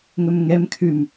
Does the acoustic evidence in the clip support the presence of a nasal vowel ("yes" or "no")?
no